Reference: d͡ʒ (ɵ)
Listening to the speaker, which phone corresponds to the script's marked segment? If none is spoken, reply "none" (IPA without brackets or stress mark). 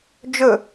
ɵ